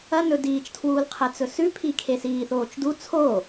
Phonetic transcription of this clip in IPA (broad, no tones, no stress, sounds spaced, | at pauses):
ɐ n ɵ d iː t͡ʃ tʰ w uː l qʰ e t͡s ɵ s ʉ pʰ i kʰ e s iː θ oː t͡ʃ d u t͡sʰ o